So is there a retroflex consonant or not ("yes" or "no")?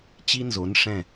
yes